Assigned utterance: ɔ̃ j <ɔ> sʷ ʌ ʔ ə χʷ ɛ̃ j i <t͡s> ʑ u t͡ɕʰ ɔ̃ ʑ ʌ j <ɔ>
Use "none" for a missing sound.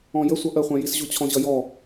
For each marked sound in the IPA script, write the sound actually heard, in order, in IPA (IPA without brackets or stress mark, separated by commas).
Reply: ə, s, ɔ